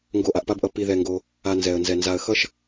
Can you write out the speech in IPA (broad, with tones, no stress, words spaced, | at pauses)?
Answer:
ŋɡo˧ʔa˨ʔpa˦bʔʌ˧ pi˧ðɛ˧ŋɡo˧ | a˧nzɛ˨ə̯nzɛ˨ nza˨ə̯xʌ˦ʃ